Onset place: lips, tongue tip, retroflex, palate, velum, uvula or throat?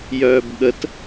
palate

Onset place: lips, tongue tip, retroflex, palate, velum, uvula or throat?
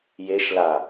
palate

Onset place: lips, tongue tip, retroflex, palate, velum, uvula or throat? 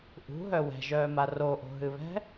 throat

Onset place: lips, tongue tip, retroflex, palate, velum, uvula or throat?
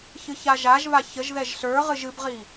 palate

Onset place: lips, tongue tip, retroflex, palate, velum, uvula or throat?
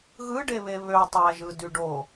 velum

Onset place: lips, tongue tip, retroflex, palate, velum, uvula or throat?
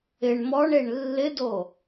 retroflex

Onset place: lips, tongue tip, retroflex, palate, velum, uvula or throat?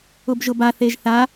lips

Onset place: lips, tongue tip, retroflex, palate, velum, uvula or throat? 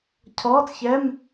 palate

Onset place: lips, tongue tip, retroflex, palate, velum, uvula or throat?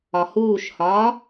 throat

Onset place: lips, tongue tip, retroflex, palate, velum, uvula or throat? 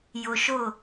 palate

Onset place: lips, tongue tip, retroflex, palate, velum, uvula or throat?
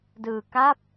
tongue tip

